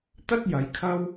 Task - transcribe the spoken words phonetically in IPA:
t̪ ɐ˥ t̚ j ɐ˨˧ j kʰ ɐ˥ w

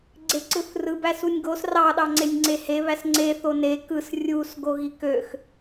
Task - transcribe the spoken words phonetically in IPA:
ɡ͡ǀ e ǀ ɯ θ r ɯ b æ s u nʲ ɡ o s r ɑ ɗ ɑ ŋ͡ǀ e nʲ ŋ͡ǀ e h e β æ s ŋ͡ǀ e θ o n e k ɯ s rʲ u s ɡ o ɣ i k ø x

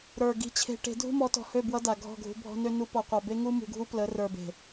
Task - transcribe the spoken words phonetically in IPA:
ɾ ə˞˨ ɡ i̤˧ t͡ɕʰ e̤˧ ʈ e̤˧ dʱ ṳ˦ m ɔ˨˦ t ɔ̤˨ h ø˦˨ b w ʌ˦ d a˨ ɡʱ ɔ̤˦˨ ɡʱ ṳ˧ bʱ ɔ̤˦ n ø˦ n u˦ p ɔ˧ qʷ a˧ b e˦ ŋ u˦ m ṳ˧ ɡʱ u˦ p l ə˨˦ r ə˞˨ b e̤˨

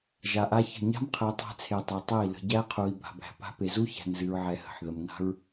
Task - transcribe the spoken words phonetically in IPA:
ʒ a˨ ʔ a˦ ç ə̤˦˨ ɲ a̤˦ m qʰ ə˨ i̯ tˤ æ̤˦ t͡sʰ e˨ tˤ e˨ tˤ e˦˨ i̯ l ə̤˨ ɟ æ˦ qʰ u˨ i̯ b a̤˨ b æ̤˨ p a̤˦ p e˨ z u˦ ç æ̤˨ n z ɨ˨ ɹ ʕ ɛ˨ h ə̤˨ ħ ð ə˨ m n a̤˦ ɹ

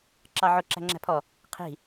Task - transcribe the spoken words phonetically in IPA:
ǁ ɑ ʕ ʊ ǁ æ̤ ŋ͡ǁ æ̤ pʰ ɔ | qʰ i̤

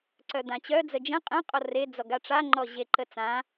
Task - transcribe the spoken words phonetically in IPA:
ǀ œ d̪ ã t͡ɕ œ d͡z ə d͡ʒ ə̃ qʼ ə̃ qʼ ɔ r e d͡z ɔ ɡ a ʈ͡ʂ a ŋ͡ǃ ɔ ʑ e ǃ ə t͡s ã

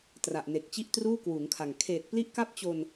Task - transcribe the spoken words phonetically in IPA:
t r a˨˩ ʔ n e˨˩ k̚ t͡ɕ i˥˩ ʔ t r uː˥˩ k w uː˩˦ ŋ kʰ a˨˩ ŋ kʰ eː˨˩ t̚ p l i˦˥ ʔ k a˦˥ p̚ t͡ɕ o˧ n

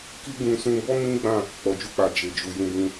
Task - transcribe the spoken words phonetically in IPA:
k i˦ ɡ ũ˧ s ũ˧ b ɔ˦ m ĩ˦ ɡ͡b ã˦˨ | k͡p ɔ˨ d͡ʒ u˧ k͡p a˨ d͡ʒ e˨ d͡ʒ u˨ j ũ˧ b ũ˧

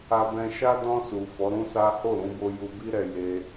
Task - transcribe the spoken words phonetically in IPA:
a˧ b ɛ̃˧ ʃ a˦ d ɔ̃˧ s u˨ f ɔ˨˦ ɾ ũ˦ s a˦ h o˦˨ ɾ ũ˧ b o˧ j u˧ b i˦ ɾ ɛ˧ j e˧

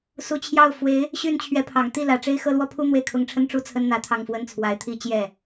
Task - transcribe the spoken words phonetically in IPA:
s u˧˥ t͡ɕʰ j ɑ˥˩ ʊ̯ f w e˧˥ ɪ̯ | ɕ y˥˩ n t͡ɕʰ ɥ ɛ˧˥ pʰ ɑ˨˩ ŋ t̪ i˥˩ l ä˧˥ ʈ͡ʂ e˥ ɪ̯ x ɤ˥˧ l w ɔ˥˩ pʰ u˥ n̪ w e˥˩ ɪ̯ kʰ ʊ˧˥ ŋ ʈ͡ʂʰ ə˥ n ʈ͡ʂ u˥ t͡sʰ ə˥ n n̪ ä˧˥ t̪ʰ ɑ˥˩ ŋ f w ə˥ n t͡sʰ w a˧˥ ɪ̯ t̪ʰ i˥˧ t͡ɕ j ɛ˥˩

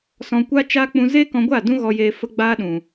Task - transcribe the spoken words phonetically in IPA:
s ɔ̃˧ kʷ a˦ t͡ʃ a˦ k͡p ũ˧ z e˦ k ɔ̃˧ ɡʷ a˦˨ d ũ˦ ɣ ɔ˧ j eː˧ f ə˦ ɡ͡b aː˦ ɗ ũ˨

